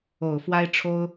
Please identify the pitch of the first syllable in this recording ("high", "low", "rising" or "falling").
low